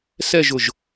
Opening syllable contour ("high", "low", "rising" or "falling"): falling